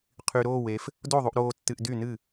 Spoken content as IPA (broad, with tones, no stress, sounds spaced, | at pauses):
qʰ y˧ ɾ oː˥˨ w e˧ f | d o˥˨ ðˤ u˧ ʔ ɾ oː˧ tː ɨ˧ ʔ d y˥˨ n ɨ˥˨